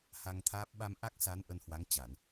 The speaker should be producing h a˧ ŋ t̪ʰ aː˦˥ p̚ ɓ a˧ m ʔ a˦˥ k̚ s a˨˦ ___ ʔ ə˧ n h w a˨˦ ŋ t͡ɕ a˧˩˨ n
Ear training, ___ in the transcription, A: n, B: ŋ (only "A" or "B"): A